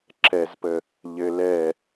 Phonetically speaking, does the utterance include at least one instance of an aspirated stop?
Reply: no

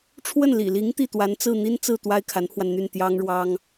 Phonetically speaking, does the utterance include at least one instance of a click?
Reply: no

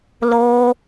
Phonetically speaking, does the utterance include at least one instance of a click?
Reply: no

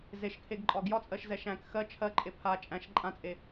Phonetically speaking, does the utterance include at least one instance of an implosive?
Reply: no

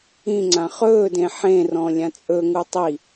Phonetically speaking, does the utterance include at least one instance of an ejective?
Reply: yes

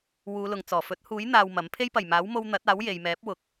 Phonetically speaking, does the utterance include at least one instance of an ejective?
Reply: no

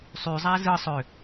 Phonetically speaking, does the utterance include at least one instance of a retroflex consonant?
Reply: no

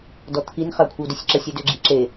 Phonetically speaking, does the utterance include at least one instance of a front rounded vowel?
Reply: yes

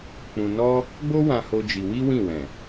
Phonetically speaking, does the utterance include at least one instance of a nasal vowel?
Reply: yes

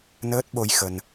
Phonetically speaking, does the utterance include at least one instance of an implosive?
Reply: yes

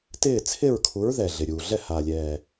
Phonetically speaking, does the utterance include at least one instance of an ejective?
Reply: no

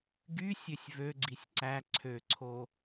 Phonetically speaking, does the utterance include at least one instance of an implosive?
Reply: no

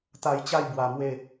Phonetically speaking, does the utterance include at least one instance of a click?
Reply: no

